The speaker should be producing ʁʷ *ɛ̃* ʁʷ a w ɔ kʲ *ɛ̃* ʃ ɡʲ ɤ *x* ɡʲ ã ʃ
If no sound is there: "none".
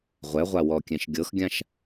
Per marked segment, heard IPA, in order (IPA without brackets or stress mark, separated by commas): ɛ, ɛ̃, x